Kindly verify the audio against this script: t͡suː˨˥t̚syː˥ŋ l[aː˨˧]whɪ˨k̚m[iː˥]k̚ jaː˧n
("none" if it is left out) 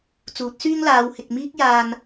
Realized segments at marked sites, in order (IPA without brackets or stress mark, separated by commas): aː˨˧, iː˥